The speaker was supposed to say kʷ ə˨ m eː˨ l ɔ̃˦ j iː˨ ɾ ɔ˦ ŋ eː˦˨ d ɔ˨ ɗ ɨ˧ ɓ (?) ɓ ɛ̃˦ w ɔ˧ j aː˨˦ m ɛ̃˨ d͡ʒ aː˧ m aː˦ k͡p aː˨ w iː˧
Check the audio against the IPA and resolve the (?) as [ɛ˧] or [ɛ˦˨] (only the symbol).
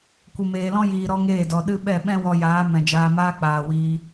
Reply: ɛ˦˨